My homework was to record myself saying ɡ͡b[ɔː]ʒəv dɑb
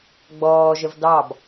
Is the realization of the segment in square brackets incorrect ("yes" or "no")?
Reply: no